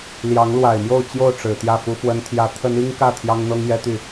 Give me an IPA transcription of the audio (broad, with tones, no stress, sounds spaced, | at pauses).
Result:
l j ɑ˧˥ ŋ l w a˨˩ ɪ̯ m j o˥˧ ʊ̯ t͡ɕ j o˥˩ ʊ̯ ʈ͡ʂ ɻ̩˨˩ t̪ j ä˥˩ f u˥ f w ə˥ n t̪ʰ j ä˥ t̪ʰ ə˥ n i˥ ŋ k ä˥˩ t̪ʰ j ɑ˥ ŋ n̪ ɤ˥ ŋ j ɛ˥ t̪ y˥˩